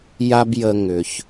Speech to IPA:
ja˥bjə˧ ŋʏ˩ç

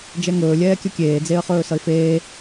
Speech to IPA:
d͡ʒɛŋɵːlʲɛː kʲɵkʲeːd͡zeə̯χɵː sʌɪ̯feː

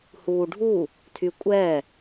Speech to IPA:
huːɖʱu | tʰykʷʼɛ

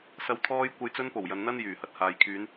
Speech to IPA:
sɐ˨˧wt̪ʰɔː˧j kʷɐ˨˧jt͡sɵ˧npo˨˩w jɐ˧nn̪ɐ˥n jyː˨˩ hɐ˧t̚haː˨jkʰyː˨˧n

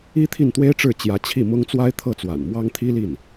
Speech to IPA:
i˥ t̪ʰi˥˩nt̪we˥ɪ̯ʈ͡ʂɻ̩˥˩ t͡ɕjä˧˥t͡ɕʰi˥˩ mʊ˥ŋ t͡swa˥ɪ̯t̪ʰɤ˥˩t͡swa̰˨˩n mwɑ˥ŋt̪ʰi˥li˥˩n

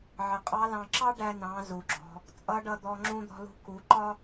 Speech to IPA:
ʕə˩qʼɑ˧˥lɑ̃˧ ǁɑ˥ɖæ˧nɑ̃˩˧ zu˩ɡ͡ǁɔ̤˩˧ | t͡sʼʌ˧˥ɖʌ˧ d̪ɔ˧ ŋ͡ǁũ˧d̪ɔ̤˧lṳ˧ ku˩˧ ǃɒ˥

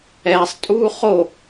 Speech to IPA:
ɛːsˤtʼuː χo

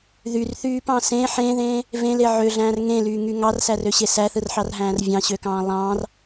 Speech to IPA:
ðyrθyːpɑ̃ sẽ ħẽðẽː | vẽle ʕøɮæ̃ːr ŋẽlyːŋy ŋɑrsærøɕe sæθɯrħɑrɦæ̃ːr vʲɑ̃ɕøkɑ̃ː lˠɑ̃ːr

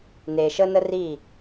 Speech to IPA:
ne˨ʃə˦nə˦ri˦˨

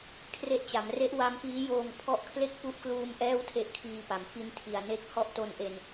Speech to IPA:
kʰre˦˥ʔt͡ɕa˩˦m re˦˥ʔwa˦˥mpiː˦˥joː˧ŋ pʰɔ˦˥ʔkʰle˥˩k̚ pu˦˥ʔkluː˧m ʔɛː˥˩wtʰe˦˥ʔkʰiː˧pa˩˦m fi˦˥ntʰi˨˩a̯ne˦˥k̚ hɔ˥˩ʔto˧nʔe˧n

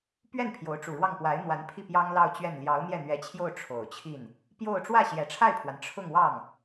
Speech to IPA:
pɥɛ˥˩n pʰjo˧˥ʊ̯ʈ͡ʂu˨˩ɻwɑ˥˩ŋ pwa˧˥ɪ̯n̪wa˧˥npʰi˥˩ pjɑ˥ŋlɑ˥˧ʊ̯t͡ɕɥɛ˥˩n ljɑ˧˥ʊ̯n̪jɛ˥˩n̪ɥɛ˧˥t͡ɕʰjo˥˩ʊ̯ ʈ͡ʂʰo˨˩ʊ̯t͡ɕʰi˥˩n | pjo˥˧ʊ̯ ʈ͡ʂwä˥˩ɕjɛ˨˩ʈ͡ʂʰa˥˩ɪ̯pʰwa˩n ʈ͡ʂʰʊ˥˧ŋwɑ˥˩ŋ

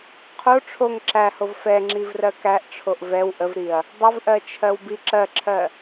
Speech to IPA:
qʰo ʈ͡ʂʰoŋ ǁæhov fɛŋ͡ǁivrɜ kæʔʈ͡ʂʰoʔ vɛw ʔəvɾiɐ̯ | dˤəvʔɜt͡ʃʰɜwbi ǁɜǁʰɜ

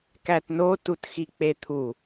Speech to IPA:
kætno tutxik͡pet̪ʰu

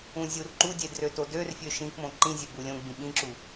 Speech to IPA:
ũzʲurǃudʲe drøtodørfʲø ʃĩkmõ ǃĩzʲø bulʲõɡ͡bĩ ɓĩǁu

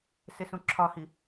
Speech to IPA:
sesũǁʰɒhi

